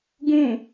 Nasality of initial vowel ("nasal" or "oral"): nasal